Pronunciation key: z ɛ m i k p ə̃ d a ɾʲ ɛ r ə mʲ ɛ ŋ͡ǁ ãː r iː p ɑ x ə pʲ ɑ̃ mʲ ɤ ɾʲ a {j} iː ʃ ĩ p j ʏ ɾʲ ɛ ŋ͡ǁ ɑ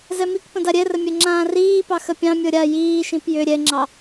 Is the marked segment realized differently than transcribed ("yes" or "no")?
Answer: no